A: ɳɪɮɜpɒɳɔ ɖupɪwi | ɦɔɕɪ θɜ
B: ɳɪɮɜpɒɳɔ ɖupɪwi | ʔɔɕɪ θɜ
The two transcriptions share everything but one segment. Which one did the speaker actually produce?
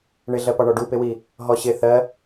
A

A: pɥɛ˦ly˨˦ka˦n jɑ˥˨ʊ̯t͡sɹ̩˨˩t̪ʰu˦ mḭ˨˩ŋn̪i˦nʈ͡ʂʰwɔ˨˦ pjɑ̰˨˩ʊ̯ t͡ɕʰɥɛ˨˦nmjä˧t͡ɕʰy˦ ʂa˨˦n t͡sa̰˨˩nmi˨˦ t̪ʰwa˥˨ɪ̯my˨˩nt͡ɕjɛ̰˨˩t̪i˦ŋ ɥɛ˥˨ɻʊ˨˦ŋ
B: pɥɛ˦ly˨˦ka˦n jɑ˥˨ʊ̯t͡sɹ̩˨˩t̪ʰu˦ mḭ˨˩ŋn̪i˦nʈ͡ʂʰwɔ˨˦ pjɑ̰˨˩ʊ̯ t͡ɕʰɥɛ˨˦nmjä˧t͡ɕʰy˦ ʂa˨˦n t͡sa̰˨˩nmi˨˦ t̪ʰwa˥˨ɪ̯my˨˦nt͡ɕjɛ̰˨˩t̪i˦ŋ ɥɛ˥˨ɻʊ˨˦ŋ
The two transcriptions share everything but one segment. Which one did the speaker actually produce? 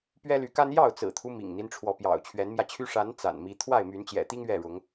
B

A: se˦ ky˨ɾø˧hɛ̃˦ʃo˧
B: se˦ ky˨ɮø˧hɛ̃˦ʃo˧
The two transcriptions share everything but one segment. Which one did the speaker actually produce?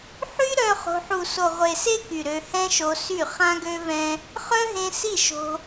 A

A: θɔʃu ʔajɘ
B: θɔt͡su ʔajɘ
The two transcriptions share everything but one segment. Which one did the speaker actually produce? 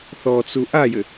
B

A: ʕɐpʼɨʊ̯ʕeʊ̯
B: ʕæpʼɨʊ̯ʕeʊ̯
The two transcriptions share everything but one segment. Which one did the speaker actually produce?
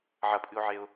A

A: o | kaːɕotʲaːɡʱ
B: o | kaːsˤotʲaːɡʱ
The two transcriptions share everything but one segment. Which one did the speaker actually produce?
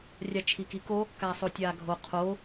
B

